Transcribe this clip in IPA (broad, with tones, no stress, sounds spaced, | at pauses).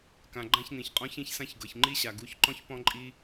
k ã˨ ɡ͡ǃ ã˦ ç n̪ ĩ˨ ç qʼ ɔ̃˦ ç ĩ˧ ç s ã˧ ç ɡ ɤ˨ ç ŋ͡ǃ i˦ ɕ a˨ ɡ u˨˦ ç ǃ ɔ̃˦ ç p ɔ̃˦ ǃʼ i˦